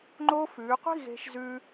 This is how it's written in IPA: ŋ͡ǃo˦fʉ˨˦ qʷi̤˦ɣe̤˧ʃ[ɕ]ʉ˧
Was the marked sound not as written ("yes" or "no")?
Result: yes